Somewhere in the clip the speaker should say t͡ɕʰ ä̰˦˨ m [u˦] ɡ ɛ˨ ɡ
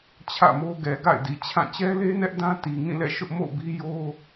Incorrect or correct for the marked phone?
incorrect: o˦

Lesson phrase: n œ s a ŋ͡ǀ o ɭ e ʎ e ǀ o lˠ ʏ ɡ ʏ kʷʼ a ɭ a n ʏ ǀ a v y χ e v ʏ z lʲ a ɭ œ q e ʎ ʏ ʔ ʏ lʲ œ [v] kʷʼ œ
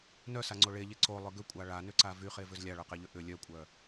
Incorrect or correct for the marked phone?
incorrect: none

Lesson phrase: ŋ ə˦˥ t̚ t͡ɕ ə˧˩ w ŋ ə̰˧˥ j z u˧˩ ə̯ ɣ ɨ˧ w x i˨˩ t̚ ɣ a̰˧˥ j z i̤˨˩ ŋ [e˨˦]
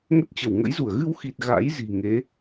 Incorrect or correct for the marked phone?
correct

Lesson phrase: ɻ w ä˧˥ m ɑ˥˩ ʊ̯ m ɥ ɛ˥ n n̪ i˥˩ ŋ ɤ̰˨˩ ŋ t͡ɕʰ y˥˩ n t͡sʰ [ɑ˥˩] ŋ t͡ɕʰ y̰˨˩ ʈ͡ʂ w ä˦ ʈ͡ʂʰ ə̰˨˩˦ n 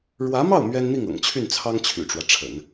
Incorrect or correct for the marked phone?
incorrect: ɑ˥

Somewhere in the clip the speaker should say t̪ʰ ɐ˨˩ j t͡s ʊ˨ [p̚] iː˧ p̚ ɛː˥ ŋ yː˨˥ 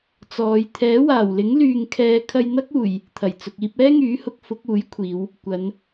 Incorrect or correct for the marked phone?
incorrect: k̚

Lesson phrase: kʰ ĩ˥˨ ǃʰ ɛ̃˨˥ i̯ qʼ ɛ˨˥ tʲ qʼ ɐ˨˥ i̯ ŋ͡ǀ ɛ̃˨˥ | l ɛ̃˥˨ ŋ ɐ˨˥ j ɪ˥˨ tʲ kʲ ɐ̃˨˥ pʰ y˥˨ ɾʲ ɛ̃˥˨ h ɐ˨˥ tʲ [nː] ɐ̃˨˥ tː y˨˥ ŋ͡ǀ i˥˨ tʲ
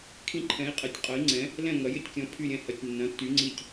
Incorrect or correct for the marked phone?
correct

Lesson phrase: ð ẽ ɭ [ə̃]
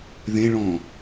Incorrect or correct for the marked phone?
incorrect: ɔ̃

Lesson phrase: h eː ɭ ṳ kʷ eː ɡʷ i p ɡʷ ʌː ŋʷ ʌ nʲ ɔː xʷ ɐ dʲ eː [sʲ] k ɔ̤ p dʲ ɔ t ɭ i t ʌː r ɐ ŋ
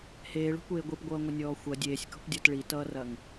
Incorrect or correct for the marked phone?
correct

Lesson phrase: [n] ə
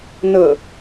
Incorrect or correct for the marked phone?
correct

